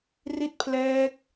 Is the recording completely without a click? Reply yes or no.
yes